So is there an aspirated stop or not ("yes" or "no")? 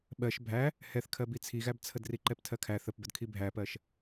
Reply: yes